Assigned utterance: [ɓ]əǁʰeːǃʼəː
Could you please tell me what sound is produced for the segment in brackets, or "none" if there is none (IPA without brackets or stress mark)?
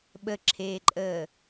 ɓ